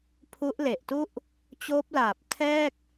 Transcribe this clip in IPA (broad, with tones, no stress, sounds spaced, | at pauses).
pʰ u˦˥ ʔ l e˨˩ ʔ t u˥˩ ʔ | t͡ɕ oː˦˥ p̚ l aː˨˩ p̚ tʰ ɛː˥˩ k̚